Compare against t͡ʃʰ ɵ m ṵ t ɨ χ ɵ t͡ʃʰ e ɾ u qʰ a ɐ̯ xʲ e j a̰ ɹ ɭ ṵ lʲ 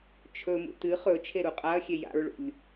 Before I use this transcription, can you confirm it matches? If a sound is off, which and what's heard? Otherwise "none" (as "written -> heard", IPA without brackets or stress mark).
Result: qʰ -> qʼ